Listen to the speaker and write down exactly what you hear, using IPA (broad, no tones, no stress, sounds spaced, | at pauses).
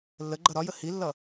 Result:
lː ə ɡ͡ǃ ʌ ɾ ɒ j ə h i lː ʌ